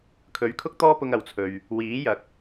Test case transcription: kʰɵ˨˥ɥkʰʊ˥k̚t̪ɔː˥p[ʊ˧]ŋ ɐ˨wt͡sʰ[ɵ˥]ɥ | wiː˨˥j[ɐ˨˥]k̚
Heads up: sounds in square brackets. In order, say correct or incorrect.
correct, incorrect, correct

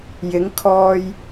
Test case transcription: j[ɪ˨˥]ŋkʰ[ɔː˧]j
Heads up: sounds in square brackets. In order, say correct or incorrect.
correct, correct

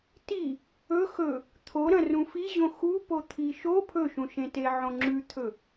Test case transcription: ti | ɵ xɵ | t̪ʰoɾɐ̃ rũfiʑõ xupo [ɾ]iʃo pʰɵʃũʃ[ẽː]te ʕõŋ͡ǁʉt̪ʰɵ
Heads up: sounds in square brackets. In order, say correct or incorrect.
incorrect, incorrect

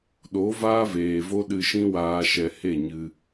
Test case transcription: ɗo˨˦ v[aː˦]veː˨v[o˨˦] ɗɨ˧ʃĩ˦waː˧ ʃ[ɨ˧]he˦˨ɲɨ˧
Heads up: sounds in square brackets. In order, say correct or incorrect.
correct, incorrect, incorrect

